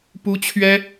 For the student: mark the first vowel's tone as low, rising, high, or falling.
high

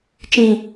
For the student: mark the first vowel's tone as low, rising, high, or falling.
low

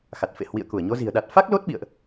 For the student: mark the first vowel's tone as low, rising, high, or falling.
low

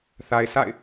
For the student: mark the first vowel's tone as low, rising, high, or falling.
low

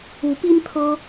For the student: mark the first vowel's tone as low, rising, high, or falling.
rising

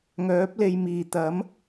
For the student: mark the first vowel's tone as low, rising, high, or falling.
rising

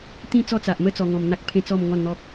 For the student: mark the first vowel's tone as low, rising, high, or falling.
falling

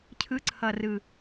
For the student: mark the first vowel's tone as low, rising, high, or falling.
rising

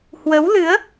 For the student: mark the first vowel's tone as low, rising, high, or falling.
rising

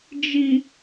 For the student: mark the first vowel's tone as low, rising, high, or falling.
low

